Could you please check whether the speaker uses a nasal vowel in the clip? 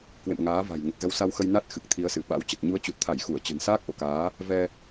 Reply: no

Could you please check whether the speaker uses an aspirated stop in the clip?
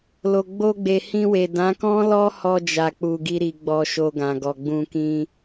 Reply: no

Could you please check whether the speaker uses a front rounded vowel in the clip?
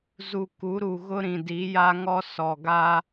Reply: no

